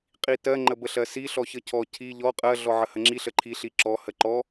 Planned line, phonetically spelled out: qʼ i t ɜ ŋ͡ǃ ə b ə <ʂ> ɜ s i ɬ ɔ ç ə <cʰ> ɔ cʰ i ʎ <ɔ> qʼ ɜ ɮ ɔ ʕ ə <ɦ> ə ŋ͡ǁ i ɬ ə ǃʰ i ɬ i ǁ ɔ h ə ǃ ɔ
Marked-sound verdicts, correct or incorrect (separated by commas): incorrect, correct, correct, incorrect